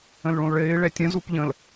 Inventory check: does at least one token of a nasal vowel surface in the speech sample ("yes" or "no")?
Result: yes